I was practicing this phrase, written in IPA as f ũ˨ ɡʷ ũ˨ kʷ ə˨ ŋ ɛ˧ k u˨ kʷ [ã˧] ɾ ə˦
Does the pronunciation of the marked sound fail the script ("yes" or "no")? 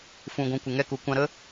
no